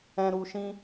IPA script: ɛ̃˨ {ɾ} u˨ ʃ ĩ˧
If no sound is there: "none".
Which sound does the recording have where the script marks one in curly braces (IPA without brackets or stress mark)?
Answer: ɾ